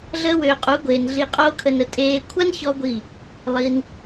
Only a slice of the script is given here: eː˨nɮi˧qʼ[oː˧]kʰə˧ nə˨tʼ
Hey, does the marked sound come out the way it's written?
no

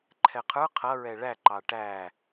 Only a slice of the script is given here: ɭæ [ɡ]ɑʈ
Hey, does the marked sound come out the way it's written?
no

